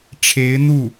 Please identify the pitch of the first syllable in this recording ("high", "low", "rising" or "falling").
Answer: rising